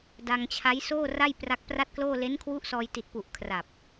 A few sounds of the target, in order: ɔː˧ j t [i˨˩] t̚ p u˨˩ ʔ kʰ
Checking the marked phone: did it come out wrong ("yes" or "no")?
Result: no